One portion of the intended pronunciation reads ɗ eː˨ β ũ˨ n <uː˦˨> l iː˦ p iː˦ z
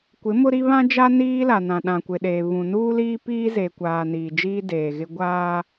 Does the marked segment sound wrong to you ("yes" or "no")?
yes